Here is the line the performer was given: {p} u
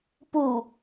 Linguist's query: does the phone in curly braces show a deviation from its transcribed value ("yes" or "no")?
no